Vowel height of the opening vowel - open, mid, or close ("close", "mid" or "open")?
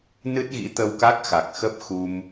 close